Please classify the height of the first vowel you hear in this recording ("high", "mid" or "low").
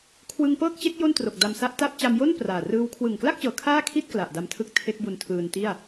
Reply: high